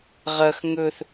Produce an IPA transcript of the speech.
ʁ ɐ x ŋ ɵ θ

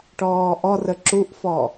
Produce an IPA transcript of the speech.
ʈ ɔː ʔ ɔ r ə ǁ u ʔ f ɔ

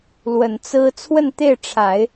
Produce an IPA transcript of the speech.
l w ə˨˩ n t͡s ɹ̩˥ t͡sʰ w ə˥˧ n t̪ e˥˩ ɪ̯ ʈ͡ʂʰ a˨˩˦ ɪ̯

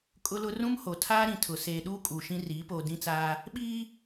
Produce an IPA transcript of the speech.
kʼ ʊ˦ l ʊ˦ r ũ˦ m h o˨ tʰ aː˦ ɾ ĩ˨ tʰ ʊ˨ s eː˨ ɗ uː˦ kʼ uː˨ ʃ ĩ˦ r iː˨˦ p oː˨ d ĩ˦ t͡s aː˦ | ɓ iː˦

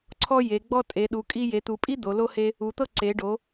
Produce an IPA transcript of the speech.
ǀʰ ɔ˦ j e˩˧ ɡ͡b ɔ˦ tʼ e˩˧ ɗ u˩˧ kʼ i˦ j e˩˧ t̪ u˩˧ pʼ i˦ d̪ o˩˧ l o˦ h e˦ | u˩˧ t̪ ɤ˦ ǀ e˩˧ ɖ o˩˧

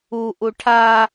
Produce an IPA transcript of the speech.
u ʔ u ʈʰ a

